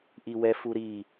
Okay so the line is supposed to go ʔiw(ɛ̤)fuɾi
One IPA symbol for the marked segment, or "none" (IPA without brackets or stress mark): ɛ